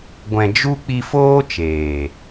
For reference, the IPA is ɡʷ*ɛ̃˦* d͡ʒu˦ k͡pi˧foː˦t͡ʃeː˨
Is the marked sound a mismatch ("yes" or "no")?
yes